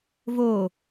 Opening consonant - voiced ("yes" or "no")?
yes